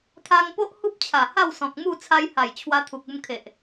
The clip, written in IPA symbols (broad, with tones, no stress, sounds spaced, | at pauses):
t̪ʰ a˧ ŋ p o˦ ʔ h u˦ p̚ t͡ɕʰ a˨˩ h a˥˧ w s ɔ̃˨ k̚ m u˥˧ t͡sʰ a˧ j h a˨˩ j t͡ɕʰ w a˧ t̪ʰ u˨ k̚ u˧ m kʰ e˨ ʔ